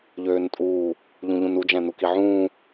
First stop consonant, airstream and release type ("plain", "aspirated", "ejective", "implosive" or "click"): ejective